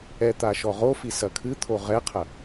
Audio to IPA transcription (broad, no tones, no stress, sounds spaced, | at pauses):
ɛ t̪ a ʃ ɔ ʁ o f i s ɐ kʰ ɨ t̪ʰ o ʁ ɛ qʰ ɐ